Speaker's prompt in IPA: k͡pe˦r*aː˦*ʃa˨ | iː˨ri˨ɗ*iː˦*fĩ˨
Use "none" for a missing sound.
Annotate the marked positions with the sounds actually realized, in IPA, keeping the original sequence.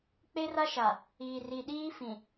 a˦, iː˦

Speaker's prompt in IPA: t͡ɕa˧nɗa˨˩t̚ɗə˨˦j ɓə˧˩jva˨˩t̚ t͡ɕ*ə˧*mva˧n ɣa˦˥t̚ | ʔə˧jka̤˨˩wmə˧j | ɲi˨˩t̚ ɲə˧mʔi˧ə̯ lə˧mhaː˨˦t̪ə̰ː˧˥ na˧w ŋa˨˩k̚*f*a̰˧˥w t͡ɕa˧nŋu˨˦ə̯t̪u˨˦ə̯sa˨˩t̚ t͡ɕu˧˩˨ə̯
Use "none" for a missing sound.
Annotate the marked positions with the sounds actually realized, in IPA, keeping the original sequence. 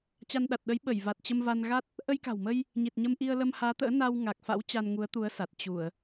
ə˧, f

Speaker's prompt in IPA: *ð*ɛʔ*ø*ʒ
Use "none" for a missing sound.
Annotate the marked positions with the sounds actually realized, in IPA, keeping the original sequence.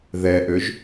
ð, ø

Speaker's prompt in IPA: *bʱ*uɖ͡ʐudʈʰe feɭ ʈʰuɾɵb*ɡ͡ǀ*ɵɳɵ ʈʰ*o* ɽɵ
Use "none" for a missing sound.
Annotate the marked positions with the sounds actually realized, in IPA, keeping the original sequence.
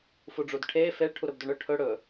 f, d, ɵ

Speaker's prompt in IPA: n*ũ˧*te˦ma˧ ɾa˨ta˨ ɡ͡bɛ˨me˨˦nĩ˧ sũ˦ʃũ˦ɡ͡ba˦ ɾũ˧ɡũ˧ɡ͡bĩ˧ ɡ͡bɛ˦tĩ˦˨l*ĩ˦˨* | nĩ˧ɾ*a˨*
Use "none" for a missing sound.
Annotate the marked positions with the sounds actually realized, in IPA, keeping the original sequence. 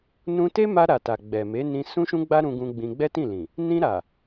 ũ˧, ĩ˨, a˨

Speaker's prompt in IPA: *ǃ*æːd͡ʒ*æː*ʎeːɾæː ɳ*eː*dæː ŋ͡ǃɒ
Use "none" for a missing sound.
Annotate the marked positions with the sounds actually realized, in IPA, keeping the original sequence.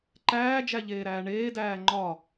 ǃ, æ, eː

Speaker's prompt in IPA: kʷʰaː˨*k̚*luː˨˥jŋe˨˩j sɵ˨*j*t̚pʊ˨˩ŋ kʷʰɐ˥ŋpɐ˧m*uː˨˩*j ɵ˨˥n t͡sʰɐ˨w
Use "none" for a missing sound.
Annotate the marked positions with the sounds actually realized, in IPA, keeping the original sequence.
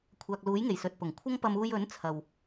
k̚, none, uː˧

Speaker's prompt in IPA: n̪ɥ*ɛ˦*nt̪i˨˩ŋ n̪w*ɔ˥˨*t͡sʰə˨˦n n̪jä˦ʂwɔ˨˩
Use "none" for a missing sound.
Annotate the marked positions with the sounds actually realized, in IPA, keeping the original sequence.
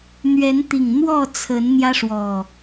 ɛ˨˦, ɔ˥˨

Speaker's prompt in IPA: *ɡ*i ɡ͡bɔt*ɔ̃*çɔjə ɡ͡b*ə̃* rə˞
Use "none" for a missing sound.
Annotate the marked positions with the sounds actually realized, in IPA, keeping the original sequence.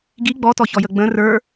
ɡ, ɔ, ə̃

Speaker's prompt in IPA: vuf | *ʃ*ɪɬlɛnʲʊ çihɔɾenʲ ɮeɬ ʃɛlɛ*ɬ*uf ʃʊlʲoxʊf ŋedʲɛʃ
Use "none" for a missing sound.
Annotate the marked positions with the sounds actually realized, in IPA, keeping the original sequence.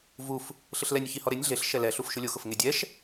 ɬ, ɬ

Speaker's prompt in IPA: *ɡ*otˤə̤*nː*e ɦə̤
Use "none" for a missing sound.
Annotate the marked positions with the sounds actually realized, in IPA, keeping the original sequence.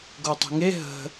ɡ, ŋ

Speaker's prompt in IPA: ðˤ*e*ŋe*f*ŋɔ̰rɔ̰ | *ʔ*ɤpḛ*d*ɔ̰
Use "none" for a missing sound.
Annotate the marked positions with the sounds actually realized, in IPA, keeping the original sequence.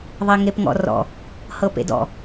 e, p, h, d

